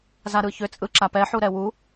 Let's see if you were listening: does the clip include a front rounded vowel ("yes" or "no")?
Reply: yes